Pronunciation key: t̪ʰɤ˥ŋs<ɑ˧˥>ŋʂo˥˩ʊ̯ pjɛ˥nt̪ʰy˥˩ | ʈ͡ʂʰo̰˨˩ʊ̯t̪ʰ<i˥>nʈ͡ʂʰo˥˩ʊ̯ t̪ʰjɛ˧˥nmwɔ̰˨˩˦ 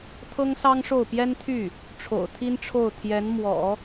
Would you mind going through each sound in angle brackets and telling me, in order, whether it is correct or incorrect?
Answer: incorrect, correct

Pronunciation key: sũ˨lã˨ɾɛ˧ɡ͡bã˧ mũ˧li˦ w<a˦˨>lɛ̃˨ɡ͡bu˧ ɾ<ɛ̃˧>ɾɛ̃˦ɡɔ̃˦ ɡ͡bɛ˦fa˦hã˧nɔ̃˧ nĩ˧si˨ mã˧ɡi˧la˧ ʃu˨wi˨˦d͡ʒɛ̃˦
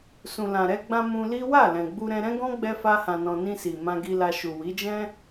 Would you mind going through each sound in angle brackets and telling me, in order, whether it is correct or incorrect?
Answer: correct, correct

